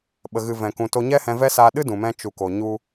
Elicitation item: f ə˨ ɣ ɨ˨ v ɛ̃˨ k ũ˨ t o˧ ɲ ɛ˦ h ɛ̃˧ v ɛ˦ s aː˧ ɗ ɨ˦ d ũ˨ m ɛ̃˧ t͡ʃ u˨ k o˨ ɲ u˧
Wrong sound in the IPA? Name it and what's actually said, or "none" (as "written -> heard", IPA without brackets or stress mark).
f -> ɓ